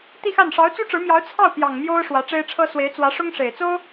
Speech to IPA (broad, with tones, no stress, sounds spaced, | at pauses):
t̪ i˥˧ x a˥˩ n ʂ ɑ˧˥ ʊ̯ t͡s u˥ ʈ͡ʂ ɻ̩˧˥ m j ɑ˧˥ ʊ̯ t͡sʰ ɑ˥˩ ʊ̯ p j ɑ˨˩ ŋ m j o˥ ʊ̯ ʂ w ä˧˥ ʈ͡ʂ e˥ ɪ̯ ʈ͡ʂʰ ɤ˥ s w e˧˥ ɪ̯ t͡s w ä˧˥ ʂ ʊ˥ ŋ ʂ e˨˩ ɪ̯ t͡s o˥ ʊ̯